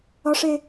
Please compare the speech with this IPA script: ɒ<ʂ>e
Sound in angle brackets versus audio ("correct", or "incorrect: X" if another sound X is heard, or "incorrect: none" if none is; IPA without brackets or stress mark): correct